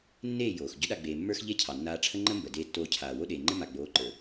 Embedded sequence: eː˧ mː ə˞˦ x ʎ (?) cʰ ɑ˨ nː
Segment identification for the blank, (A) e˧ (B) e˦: B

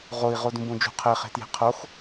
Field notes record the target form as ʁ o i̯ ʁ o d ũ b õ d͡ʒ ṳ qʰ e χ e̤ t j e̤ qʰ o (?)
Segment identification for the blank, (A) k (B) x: B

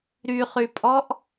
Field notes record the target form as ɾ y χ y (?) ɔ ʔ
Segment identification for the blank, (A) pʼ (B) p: A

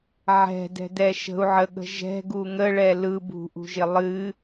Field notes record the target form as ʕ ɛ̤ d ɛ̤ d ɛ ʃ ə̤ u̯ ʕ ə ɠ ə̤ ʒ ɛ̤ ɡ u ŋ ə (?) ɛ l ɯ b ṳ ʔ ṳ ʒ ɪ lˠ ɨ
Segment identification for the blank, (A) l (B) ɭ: B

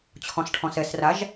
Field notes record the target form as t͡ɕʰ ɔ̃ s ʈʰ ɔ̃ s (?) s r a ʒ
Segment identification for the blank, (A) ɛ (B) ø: A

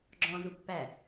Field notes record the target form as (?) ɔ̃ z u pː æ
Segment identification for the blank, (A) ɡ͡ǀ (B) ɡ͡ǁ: B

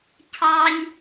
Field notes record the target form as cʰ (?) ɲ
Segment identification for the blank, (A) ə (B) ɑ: B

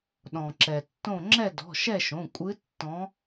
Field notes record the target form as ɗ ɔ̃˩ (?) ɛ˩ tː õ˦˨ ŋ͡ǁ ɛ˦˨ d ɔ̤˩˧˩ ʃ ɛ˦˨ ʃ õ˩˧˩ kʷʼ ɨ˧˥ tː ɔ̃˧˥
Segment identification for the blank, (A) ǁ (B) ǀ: A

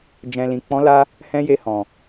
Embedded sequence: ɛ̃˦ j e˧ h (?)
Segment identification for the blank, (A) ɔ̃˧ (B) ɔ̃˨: B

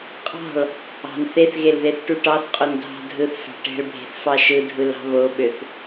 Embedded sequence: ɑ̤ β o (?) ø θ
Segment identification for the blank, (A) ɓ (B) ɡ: A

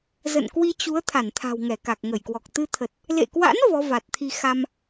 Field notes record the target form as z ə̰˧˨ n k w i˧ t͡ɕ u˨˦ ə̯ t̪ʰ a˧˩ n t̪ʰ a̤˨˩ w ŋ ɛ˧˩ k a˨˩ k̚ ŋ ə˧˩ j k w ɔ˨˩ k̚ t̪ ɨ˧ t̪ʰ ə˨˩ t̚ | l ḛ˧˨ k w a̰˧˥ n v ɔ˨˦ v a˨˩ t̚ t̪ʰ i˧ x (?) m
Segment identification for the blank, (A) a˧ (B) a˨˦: A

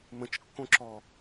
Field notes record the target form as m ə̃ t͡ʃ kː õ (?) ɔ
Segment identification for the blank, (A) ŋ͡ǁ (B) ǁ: B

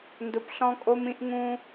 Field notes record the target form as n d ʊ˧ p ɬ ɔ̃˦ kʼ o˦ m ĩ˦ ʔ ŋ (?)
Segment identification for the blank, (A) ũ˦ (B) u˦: A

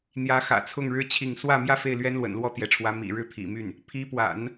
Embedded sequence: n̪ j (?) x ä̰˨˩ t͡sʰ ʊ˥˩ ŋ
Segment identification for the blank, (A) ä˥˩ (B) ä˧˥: B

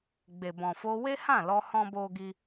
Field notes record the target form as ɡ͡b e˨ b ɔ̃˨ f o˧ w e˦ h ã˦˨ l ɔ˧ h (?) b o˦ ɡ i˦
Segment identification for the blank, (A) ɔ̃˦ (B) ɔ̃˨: A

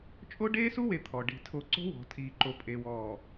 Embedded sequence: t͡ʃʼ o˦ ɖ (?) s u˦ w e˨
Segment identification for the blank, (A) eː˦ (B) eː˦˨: A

